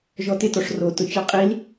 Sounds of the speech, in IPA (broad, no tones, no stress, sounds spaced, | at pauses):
ʒ ɔ t ɪ t ɔ ʂ r o t ʊ t͡ʃ ɛ qʼ i l